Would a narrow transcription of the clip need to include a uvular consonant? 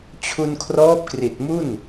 no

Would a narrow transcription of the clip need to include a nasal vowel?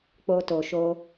no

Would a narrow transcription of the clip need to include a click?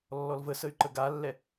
yes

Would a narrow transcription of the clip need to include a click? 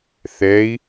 no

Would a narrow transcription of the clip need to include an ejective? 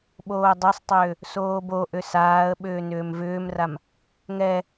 no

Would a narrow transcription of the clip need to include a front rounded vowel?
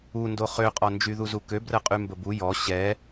yes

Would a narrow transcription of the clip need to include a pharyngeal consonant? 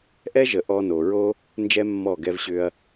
no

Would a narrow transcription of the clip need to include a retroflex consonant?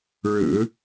yes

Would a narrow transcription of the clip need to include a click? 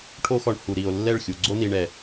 yes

